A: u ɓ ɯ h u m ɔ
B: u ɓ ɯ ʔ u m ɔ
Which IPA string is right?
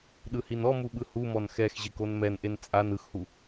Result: A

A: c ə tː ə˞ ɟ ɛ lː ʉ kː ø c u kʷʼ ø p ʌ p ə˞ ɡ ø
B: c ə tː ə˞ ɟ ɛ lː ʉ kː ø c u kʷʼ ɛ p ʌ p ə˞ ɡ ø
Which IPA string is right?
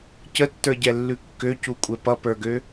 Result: B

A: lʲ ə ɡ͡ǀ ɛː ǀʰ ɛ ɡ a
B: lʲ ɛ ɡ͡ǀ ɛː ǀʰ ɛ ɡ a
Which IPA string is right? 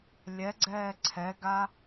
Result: B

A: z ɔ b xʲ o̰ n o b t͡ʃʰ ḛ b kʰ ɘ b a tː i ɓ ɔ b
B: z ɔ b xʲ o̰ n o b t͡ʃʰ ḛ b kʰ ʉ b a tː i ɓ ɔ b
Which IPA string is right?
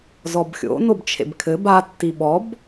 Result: A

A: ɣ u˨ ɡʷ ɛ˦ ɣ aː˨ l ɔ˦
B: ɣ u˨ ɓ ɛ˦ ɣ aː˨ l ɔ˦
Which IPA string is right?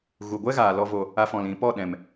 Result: A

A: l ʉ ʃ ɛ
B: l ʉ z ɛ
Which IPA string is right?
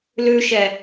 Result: A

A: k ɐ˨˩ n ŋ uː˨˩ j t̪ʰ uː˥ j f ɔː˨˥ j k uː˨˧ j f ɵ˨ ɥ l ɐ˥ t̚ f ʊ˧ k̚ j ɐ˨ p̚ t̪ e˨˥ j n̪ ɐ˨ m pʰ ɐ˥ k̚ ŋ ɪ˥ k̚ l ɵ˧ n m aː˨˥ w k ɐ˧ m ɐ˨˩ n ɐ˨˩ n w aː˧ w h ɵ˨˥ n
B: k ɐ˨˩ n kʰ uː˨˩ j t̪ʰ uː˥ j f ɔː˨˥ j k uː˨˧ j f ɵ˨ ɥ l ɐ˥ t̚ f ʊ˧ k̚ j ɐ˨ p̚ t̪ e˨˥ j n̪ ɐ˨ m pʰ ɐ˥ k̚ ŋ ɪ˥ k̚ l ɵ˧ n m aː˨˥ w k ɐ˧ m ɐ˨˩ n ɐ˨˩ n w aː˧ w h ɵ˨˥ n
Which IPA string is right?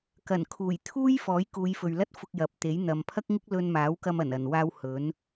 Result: B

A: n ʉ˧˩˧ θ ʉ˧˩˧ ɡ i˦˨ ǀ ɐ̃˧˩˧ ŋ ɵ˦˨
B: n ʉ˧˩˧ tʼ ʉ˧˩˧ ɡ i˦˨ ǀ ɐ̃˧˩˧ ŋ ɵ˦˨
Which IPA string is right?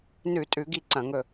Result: B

